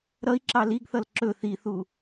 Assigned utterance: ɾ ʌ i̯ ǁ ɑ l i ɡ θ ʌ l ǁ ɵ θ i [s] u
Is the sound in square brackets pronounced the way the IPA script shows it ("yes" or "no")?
no